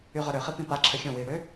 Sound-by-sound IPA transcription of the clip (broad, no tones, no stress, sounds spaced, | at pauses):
y ʁ œ ɾ ø χ i p ĩ p a ǁʰ ə xʲ õ w iː ɽ ø